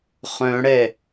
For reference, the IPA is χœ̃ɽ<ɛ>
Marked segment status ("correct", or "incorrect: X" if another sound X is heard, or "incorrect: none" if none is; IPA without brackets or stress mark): correct